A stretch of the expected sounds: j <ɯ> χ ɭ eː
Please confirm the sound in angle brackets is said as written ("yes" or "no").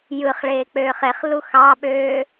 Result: yes